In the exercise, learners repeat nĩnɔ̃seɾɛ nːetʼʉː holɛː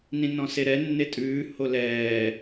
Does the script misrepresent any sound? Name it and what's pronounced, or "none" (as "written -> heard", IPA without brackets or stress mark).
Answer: none